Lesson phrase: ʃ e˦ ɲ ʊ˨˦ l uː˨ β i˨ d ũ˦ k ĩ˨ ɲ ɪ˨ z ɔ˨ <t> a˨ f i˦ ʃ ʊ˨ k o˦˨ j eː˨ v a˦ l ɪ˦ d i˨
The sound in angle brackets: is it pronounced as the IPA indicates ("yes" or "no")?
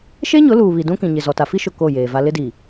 yes